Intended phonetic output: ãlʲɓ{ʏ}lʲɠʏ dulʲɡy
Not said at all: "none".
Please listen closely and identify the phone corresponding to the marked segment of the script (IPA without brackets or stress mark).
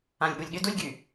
u